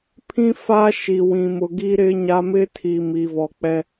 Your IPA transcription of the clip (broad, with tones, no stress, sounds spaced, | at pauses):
pʰ ĩ˦ f a˦ ʃ i˨ w ĩ˨ m ʊ˨ ɡ i˦ ɾ ɪ˦ ɲ a˦ m ɪ˦ tʰ i˨ m i˨ v ɔ˨ k͡p ɛ˦